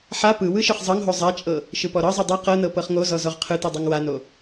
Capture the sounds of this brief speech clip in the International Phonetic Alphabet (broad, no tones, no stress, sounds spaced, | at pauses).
ħ a p ɯ w ɯ ʃ ɯ χ zˤ ɤ ŋ ɦ o zˤ a t͡ʃʼ ɤ | ʃ ɯ p ɔ ɾ ɤ zˤ ɯ dˤ ɯ q ɤ n ɤ p ɤ χ ŋ o z ɔ z ɔ ʁ qʰ ɯ t ɯ dˤ ɤ ŋ w a n o